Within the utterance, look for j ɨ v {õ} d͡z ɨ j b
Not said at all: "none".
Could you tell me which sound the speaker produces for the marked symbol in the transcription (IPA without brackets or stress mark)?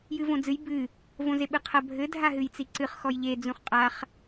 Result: õ